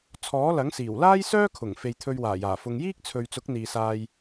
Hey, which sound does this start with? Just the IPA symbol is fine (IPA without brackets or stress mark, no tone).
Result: t͡sʰ